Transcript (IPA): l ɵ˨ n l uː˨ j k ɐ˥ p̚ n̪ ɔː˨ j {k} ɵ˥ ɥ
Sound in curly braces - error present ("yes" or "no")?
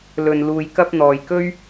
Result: no